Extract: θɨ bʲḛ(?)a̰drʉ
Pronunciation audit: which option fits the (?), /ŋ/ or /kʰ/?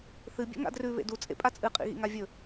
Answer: ŋ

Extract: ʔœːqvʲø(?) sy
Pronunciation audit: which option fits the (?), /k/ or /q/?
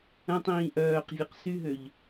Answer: q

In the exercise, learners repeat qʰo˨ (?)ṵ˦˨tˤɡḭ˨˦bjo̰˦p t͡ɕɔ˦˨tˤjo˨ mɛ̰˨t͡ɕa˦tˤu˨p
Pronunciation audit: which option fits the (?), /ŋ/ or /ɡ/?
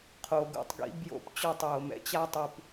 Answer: ɡ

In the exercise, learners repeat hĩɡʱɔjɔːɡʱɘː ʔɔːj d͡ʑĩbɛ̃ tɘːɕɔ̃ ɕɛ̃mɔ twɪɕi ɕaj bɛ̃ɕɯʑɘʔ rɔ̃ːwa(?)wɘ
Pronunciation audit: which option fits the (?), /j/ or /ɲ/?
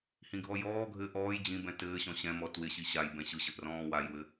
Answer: j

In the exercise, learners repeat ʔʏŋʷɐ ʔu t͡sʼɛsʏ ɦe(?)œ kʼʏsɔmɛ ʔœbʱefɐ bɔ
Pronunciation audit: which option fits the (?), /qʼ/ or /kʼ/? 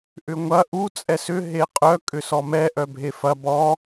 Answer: qʼ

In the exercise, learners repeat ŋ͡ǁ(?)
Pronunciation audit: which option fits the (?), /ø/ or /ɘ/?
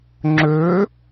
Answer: ø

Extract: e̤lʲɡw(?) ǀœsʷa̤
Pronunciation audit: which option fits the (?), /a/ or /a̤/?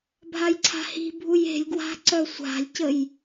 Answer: a̤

